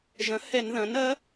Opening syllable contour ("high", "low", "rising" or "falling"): rising